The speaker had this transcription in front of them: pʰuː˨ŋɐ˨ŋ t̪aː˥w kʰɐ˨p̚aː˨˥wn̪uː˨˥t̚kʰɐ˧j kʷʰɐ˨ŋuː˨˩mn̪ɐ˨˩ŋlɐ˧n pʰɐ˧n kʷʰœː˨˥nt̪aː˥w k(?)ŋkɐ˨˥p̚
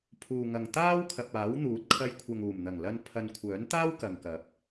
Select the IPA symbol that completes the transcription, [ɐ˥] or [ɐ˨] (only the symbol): ɐ˨